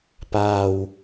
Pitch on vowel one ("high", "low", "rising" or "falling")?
low